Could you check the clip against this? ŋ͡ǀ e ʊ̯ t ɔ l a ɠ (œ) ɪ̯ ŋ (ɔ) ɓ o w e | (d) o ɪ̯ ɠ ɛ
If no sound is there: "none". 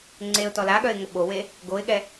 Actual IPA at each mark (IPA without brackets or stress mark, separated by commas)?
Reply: œ, ə, ɡ